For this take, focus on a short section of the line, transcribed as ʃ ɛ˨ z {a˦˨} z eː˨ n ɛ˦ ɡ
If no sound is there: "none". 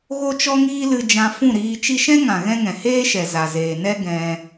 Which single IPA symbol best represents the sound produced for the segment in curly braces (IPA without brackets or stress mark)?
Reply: a˨